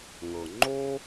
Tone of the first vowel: low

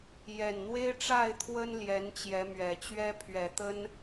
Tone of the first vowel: low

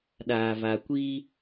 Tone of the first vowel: low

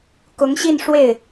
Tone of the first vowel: rising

